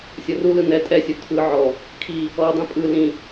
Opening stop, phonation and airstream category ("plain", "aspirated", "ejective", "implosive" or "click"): ejective